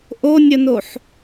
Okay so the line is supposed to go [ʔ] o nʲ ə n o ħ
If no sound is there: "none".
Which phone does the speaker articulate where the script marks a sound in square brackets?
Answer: ʔ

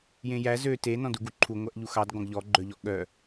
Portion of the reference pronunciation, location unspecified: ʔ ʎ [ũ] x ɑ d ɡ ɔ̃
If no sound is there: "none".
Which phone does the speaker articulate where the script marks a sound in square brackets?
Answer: u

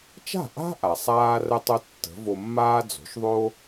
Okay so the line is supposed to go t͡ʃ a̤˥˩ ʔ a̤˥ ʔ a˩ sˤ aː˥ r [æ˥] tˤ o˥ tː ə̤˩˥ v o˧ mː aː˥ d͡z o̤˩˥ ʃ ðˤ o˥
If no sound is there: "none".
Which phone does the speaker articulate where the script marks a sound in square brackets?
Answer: ə˥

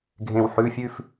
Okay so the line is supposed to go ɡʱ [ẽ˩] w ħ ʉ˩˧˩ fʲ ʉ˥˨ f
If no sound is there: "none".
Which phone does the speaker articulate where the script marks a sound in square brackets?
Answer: ẽ˩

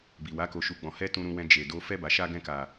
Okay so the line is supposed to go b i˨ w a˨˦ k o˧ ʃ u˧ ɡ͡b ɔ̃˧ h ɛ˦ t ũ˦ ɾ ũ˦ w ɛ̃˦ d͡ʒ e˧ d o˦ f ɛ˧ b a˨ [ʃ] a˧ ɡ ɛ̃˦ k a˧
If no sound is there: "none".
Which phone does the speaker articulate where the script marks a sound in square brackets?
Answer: ʃ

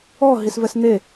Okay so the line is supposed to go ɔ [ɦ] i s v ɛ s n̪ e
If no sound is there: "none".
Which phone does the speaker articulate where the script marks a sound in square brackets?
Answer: ɦ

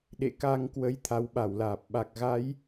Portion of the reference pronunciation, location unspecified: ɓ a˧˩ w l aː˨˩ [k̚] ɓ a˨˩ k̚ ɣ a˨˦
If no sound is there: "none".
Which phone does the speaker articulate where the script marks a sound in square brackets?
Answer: p̚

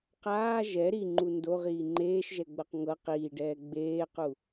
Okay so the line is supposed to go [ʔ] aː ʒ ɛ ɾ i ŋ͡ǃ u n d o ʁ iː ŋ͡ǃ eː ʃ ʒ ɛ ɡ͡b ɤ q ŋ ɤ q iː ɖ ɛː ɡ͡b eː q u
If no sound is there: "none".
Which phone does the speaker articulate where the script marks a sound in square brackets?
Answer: q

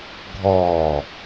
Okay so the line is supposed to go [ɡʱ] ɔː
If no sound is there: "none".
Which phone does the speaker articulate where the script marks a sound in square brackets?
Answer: ɡʱ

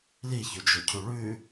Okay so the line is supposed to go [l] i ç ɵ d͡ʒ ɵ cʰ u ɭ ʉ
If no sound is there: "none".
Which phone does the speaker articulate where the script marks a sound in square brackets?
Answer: l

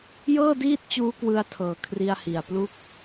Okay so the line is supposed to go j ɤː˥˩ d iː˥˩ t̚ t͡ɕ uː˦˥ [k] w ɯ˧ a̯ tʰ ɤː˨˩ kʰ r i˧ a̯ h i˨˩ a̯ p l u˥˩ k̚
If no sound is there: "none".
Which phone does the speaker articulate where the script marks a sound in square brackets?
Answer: k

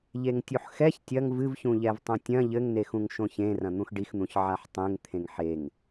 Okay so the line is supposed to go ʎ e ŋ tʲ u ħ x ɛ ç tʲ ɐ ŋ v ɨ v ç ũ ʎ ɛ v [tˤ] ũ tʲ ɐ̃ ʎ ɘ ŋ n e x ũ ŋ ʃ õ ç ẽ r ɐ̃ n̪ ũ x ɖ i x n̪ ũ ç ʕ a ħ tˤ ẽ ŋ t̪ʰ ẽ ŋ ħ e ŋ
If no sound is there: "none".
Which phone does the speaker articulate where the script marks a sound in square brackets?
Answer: tˤ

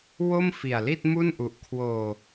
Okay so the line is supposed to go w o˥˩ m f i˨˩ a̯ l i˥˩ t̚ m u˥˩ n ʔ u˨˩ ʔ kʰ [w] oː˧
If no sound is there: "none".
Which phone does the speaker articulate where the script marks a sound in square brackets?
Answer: w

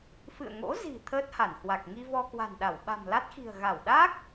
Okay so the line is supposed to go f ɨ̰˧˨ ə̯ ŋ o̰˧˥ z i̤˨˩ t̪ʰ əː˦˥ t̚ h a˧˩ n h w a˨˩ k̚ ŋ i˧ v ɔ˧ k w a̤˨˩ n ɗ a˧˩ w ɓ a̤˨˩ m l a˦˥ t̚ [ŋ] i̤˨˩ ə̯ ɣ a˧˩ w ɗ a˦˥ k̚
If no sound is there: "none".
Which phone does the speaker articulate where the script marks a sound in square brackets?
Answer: x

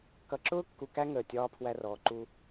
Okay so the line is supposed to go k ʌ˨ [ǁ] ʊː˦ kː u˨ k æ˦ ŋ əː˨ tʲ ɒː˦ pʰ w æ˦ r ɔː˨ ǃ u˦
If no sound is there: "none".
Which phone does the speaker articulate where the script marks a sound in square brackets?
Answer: ǁ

